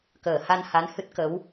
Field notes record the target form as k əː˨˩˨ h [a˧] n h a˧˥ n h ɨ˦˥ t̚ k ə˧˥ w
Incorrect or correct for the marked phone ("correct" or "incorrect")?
correct